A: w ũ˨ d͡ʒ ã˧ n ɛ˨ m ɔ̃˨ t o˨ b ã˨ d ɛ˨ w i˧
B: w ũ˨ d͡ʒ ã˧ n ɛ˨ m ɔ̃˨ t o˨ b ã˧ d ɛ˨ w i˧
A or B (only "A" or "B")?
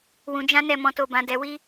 A